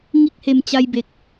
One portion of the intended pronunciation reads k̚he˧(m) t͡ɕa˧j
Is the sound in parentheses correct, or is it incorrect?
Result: correct